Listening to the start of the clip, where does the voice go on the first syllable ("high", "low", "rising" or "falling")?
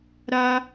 high